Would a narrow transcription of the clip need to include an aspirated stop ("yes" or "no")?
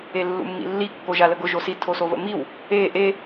yes